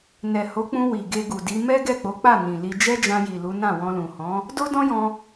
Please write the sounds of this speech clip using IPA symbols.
n ɛ˨ h o˨˦ k͡p ũ˧ w i˨ ɡ e˧ ɡ u˨ d i˨˦ m ɛ˦ ɡ ɛ˦˨ k͡p o˨˦ k͡p a˦˨ n ĩ˨ l i˧ d͡ʒ ɛ˦ d͡ʒ ã˧ j i˨ l u˨˦ n ã˦˨ w ɔ̃˧ l ũ˨ h ɔ̃˨˦ | d o˦ d ɔ̃˦ j ɔ̃˧

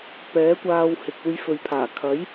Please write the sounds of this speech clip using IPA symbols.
p ɛː˨˥ kʷ aː˧ w h ɪ˨ k̚ uː˧ j f ɵ˨ ɥ pʰ aː˨˩ kʰ ɐ˨˥ j

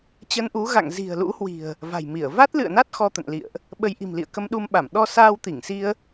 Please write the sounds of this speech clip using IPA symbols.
t͡ɕ ə˧ n ʔ u˨˦ ɣ a̰˧˨ ŋ z i̤˨˩ ə̯ l ṵ˧˥ h w i̤˨˩ ə̯ | v a̤˨˩ j m i˧˩ ə̯ v a˦˥ t̚ l ɨ̰˧˨ ə̯ n a˦˥ t̚ x ɔ˧ t̪ ə̰˧˨ n l ḭ˧˨ ə̯ ʔ | ɓ ə˧ j ʔ i̤˨˩ m l ḭ˧˨ ə̯ k ə˧ m ɗ u˧ m ɓ a˧˩ m ɗ ɔ˧ s aː˧ w t̪ i˧˩ ŋ s i˧ ə̯

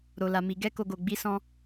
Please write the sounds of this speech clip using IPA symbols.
ɾ o˨ l a˨ m i˨ ɡ ɛ˧ k o˨ ɡ o˨ ɡ͡b i˨˦ s ɔ̃˧

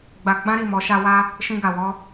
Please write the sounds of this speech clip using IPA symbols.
ɡ͡b a˧ ɡ͡b ã˦ ɾ i˦˨ m ɔ˨˦ ʃ a˧ w a˧ | ʃ ĩ˧ ɡ a˨ w ɔ˧

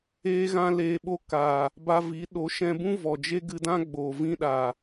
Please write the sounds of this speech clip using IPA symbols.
eː˦ ɣ ã˦ l eː˧ ɓ o˦ k a˨ | b a˧ v i˨˦ ɗ o˨˦ ʃ ɛ̃˧ b ũ˦ v ɔ˨ d͡ʒ e˦ ɡ ɨ˧ d ã˦ ɡ͡b oː˨ v ĩ˦ ɗ a˨

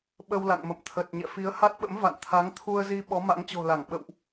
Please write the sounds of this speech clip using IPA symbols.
ɓ ə˧ w l a̰˧˨ ŋ m ə̰˧˨ m t̪ʰ ə˨˩ t̚ ɲ ɛ̰˧˨ f i˨˦ ə̯ h a˦˥ t̚ ɓ ə̰˧˥ m v a̰˧˨ n t̪ʰ a˨˦ ŋ t̪ʰ u˧ ə̯ z i˧ ɓ ɔ˨˦ m a̰˧˥ ŋ t͡ɕ o̤˨˩ l a˧˩ ŋ ɓ ə̰˧˨ w ʔ

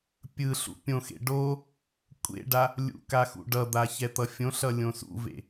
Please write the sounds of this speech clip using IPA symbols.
pʲ ɯ ɬ ṵ pʲ õ x ḛ ɖ o | kʷʼ ḛ ɖ a | lʲ ṵ k a x ṵ ɖ ʌ d̪ a ç ɛ t̪ ʌ fʲ õ ɬ ʌ lʲ õ s ṵ v ḛ

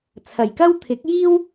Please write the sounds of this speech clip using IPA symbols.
t͡sʰ ɐ˨˩ j k ɐ˥ w t̪ʰ ɪ˨˥ k̚ j iː˥ w

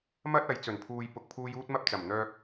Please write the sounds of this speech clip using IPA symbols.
m ɐ˥ t̚ ɐ˨˥ j t͡s ɵ˨˩ n pʰ uː˧ j p ʊ˨ k̚ pʰ uː˧ j uː˥ t̚ m ɐ˥ p̚ t͡s ɐ˨˩ m n̪ œː˧ k̚

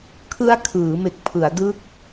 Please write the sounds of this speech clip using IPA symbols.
kʰ ɯ˦˥ a̯ kʰ ɯː˩˦ m e˨˩ k̚ pʰ ɯ˩˦ a̯ d ɯ˥˩ k̚

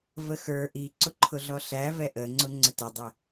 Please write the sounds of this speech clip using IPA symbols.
v ə x ə˞ ʔ i ǀ ʊ ǃʰ ʊ ɮ ɔ ɬ æ v ɛ ʔ ə ŋ͡ǀ ʊ ŋ͡ǀ ə t ʊ dˤ ə

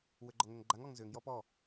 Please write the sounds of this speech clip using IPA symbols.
w ʏ ɡ͡ǃ ɔ ŋ ʏ ŋ ɡ͡ǃ a ŋ ɔ ŋ z ʏ ŋ j ɔ p ɔ

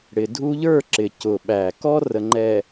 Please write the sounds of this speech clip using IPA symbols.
ɽ ɪ˨ dʱ u˦ ʎ ə˞˦˨ ǁ ɪ˨ c ʊ˨ ɓ æ˨ k ɔ˦ r ə˨ ŋ͡ǃ ɛ˨

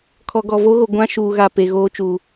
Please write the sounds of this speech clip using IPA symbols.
kʰ ɔ˨ ɡ ɔ˨ v o˦ ɣ o˨ ɡʷ ã˦ ʃ uː˨ ɣ a˨ p e˨ ɣ oː˦ t͡ʃ uː˨

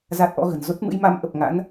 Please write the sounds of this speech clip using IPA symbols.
z a˦˥ t̚ ʔ ɔ̰˧˥ ɣ ə̤˨˩ n z o˦˥ t̚ m ɨ̰˧˥ j m a˨˦ m ʔ ə˨˩ p̚ ŋ a̰˧˥ n

